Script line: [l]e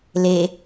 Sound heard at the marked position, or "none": l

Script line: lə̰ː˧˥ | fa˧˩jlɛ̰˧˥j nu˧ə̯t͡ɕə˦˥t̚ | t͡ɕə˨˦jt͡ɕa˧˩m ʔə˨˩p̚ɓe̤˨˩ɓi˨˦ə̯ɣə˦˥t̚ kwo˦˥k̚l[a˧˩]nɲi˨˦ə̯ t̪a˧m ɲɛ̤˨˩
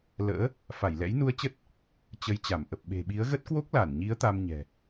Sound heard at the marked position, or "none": a˧˩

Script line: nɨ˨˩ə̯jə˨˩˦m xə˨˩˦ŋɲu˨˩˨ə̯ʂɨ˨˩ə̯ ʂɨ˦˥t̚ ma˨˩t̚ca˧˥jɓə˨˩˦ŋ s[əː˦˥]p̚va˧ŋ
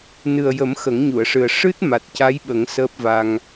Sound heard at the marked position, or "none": əː˦˥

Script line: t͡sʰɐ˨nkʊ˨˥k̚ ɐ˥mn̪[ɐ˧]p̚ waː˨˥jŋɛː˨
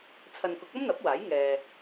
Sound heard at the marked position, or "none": ɐ˨˥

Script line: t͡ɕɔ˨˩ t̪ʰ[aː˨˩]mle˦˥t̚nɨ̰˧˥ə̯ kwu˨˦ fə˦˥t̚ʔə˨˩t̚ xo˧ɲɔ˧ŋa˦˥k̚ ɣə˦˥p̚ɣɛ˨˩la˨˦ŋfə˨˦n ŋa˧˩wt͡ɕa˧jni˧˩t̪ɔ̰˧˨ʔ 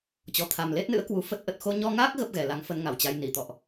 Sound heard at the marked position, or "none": a˨˩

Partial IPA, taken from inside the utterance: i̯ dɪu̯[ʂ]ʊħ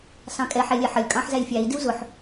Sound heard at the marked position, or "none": z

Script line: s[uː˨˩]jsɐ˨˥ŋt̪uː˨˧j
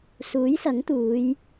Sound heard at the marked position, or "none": uː˨˥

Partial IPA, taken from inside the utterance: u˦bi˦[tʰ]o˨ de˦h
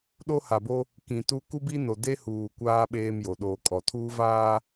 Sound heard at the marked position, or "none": n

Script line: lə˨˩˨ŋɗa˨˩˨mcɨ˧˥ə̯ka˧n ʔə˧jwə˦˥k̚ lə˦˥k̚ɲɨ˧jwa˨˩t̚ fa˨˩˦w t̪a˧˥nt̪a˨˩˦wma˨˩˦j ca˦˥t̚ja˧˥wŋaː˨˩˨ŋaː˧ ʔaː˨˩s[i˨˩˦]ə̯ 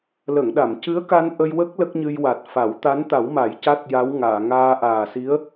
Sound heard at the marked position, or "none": i˧˥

